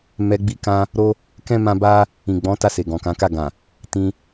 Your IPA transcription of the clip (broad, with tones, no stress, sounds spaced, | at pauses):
m ɛ˧ ɡ͡b i˧ k ã˧ | ɾ o˦ | k ɛ̃˦ m ã˦ b a˦ | ĩ˨ ɡ͡b ɔ̃˨˦ t a˧ s e˨ ɡ ɔ̃˨ k ã˨˦ k a˦˨ ɡ ã˨ | t ĩ˧